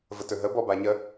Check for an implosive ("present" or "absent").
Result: absent